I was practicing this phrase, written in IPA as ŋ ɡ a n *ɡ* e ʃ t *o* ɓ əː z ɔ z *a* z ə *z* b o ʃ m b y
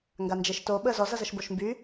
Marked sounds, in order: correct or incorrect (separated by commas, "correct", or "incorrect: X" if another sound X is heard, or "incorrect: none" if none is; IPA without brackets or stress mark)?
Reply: incorrect: d͡ʒ, correct, incorrect: ʌ, incorrect: ʃ